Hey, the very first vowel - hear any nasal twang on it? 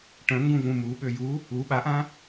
yes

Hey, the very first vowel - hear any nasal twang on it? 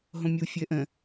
yes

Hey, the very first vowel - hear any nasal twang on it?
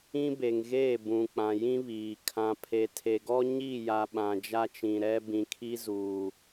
yes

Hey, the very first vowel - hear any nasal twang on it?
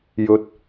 no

